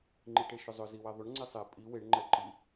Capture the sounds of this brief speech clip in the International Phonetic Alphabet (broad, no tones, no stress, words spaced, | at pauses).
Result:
ŋ͡ǃiʈeʃʏzˤʏ ziwɛðˤʏɳ ŋ͡ǀesˤe pʼi weɳ ŋ͡ǃɛǃi